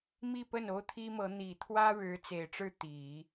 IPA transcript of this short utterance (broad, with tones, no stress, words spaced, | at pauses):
mi˥˧pə˥˩n o˥ʊ̯t̪ʰi˥mɤ˧˥ n̪i˨˩t̪ʰwä˥ ɻɻ̩˧˥t͡se˨˩ɪ̯ʈ͡ʂɻ̩˥˩ t̪i˨˩˦